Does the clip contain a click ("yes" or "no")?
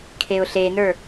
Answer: no